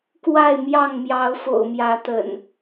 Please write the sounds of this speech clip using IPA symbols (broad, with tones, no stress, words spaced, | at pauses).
kwa˥˨ɪ̯mjɑ˥˨ŋ mjɑ˨˦ʊ̯fo̰˨˩ʊ̯mjä˨˦t̪ə̰˨˩n